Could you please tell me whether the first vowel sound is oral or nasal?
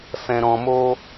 nasal